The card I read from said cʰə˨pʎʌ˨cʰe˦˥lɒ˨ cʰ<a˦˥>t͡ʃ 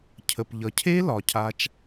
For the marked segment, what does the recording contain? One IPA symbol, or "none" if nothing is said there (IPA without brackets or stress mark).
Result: a˦˥